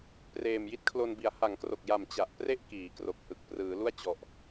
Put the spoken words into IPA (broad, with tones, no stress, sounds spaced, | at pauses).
p r eː˨˩ m j i˦˥ t̚ kʰ l o˧ n b i˩˦ a̯ h a˩˦ ŋ k r o˨˩ k̚ j a˨˩ m t͡ɕ a˨˩ ʔ p r e˥˩ ʔ k iː˩˦ k r o˨˩ k̚ h ɯ˨˩ k̚ p r ɯː˩˦ l u˥˩ a̯ t͡ɕ ɔ˨˩ ʔ